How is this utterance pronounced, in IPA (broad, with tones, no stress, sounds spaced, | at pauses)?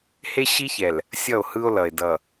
h e˦ ɕ i˦ ç ɛ˨ l | sʲ ʌ˦˨ o̯ h ɯ˦ o̯ l ʌ˨ e̯ d ʌ˨